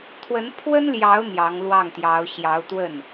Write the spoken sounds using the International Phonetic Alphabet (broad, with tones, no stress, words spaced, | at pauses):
t̪ʰwə˧˥npʰwə˥nljɑ˧˥ʊ̯ n̪jɑ˧˥ŋlwɑ˥˩ŋt̪jɑ˧˥ʊ̯ ɕjɑ˧˥ʊ̯t̪wə˥˩n